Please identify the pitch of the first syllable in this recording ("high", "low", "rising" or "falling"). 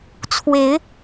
rising